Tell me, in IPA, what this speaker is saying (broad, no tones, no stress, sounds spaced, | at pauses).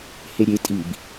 h e ɾʲ e tʼ i b